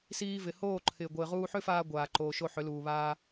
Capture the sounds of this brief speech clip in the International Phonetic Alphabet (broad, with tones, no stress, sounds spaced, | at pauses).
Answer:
s iː˧ v ɪ˨ h oː˦˨ ǃʰ ɪː˨ ɡʷ ɪː˨ ʁ uː˧ ħ ʏ˦ f aː˧ ɡʷ aː˨ ǃ oː˨ ʃ o˧ ħ ʏ˨˦ l uː˨ β aː˧